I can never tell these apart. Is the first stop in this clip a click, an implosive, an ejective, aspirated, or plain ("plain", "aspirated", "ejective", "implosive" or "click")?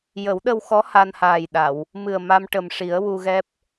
implosive